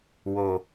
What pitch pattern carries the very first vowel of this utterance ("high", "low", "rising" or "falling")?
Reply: low